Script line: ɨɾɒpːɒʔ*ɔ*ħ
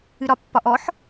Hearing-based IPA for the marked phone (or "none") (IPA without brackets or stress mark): ɔ